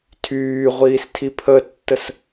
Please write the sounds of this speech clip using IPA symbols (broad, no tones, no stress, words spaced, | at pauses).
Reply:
tʰyːʁʷiːstʰi pʰətːəs